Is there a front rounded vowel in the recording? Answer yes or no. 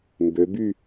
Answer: yes